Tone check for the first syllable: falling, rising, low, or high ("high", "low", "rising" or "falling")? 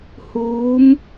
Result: rising